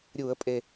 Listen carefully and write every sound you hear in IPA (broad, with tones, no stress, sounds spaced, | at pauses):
ɾʲ uː˧˩˧ ə̯ pʼ e˨˩